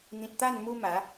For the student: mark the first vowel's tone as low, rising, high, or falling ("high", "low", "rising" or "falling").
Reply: low